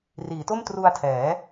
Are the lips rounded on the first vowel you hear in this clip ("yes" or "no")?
no